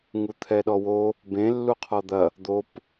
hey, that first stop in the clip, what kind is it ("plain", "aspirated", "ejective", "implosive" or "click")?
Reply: aspirated